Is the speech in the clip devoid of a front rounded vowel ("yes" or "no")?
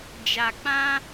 yes